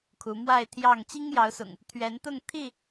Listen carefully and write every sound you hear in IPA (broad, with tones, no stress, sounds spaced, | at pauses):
kʰ u˨˦ m w a˥˨ ɪ̯ t̪ʰ j ɑ˥˨ ŋ t͡ɕ i˦ ŋ j ɑ˨˦ ʊ̯ s ʊ̰˨˩ ŋ | t̪ʰ ɥ ɛ˨˦ n t̪ ʊ˥˨ ŋ t̪ʰ i˥˨